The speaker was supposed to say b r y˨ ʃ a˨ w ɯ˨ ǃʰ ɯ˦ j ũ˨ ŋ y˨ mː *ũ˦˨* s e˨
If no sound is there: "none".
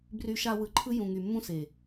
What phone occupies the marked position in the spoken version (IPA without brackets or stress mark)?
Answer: ũ˦